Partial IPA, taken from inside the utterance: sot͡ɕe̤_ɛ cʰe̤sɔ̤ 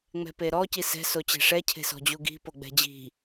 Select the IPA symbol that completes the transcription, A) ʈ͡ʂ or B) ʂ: B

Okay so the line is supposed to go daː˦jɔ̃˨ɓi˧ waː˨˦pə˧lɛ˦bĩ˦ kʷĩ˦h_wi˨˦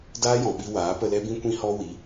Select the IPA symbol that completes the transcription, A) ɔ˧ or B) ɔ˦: B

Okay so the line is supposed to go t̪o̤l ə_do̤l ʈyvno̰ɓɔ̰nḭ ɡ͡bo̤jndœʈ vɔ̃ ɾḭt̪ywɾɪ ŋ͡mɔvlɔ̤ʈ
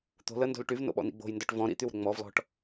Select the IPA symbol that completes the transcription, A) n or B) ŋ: A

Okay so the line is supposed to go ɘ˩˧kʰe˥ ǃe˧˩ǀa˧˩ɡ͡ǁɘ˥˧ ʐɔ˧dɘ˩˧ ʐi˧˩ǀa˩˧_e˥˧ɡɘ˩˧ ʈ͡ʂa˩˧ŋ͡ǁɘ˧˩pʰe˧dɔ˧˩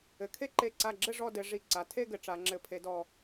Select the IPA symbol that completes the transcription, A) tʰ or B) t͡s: A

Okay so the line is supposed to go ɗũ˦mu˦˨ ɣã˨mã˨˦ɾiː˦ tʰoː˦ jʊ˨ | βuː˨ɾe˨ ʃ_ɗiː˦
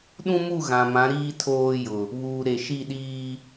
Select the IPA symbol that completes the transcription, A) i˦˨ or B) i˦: A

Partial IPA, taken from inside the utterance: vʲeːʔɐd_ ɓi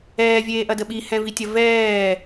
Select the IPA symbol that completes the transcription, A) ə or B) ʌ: A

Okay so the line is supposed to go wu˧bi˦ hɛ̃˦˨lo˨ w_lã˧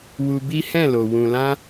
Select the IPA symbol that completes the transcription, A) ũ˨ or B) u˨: A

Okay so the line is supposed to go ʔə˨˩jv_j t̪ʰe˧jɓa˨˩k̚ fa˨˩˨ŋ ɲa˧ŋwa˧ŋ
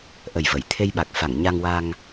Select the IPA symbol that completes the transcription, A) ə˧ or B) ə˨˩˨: B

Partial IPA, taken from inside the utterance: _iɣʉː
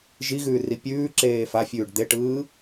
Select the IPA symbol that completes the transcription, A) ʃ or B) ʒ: B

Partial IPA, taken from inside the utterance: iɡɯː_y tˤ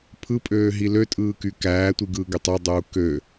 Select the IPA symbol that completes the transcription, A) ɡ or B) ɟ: A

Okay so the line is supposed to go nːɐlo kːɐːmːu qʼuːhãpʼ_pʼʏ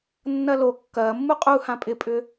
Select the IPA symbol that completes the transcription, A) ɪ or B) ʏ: A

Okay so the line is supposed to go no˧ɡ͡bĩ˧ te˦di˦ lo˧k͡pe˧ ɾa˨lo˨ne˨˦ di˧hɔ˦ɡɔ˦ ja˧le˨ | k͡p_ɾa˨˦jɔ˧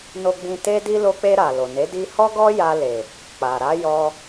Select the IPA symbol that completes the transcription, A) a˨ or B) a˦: A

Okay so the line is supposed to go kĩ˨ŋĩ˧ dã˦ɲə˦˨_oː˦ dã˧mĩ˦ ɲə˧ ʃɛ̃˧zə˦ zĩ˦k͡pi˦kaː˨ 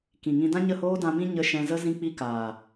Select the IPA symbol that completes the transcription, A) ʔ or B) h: B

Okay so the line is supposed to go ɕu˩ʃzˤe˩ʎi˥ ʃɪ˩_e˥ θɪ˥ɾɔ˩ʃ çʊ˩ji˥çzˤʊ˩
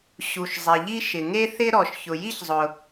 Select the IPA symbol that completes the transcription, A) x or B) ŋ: B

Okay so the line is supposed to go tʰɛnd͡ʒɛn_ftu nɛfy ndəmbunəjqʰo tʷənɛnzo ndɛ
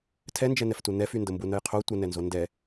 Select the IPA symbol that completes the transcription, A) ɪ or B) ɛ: B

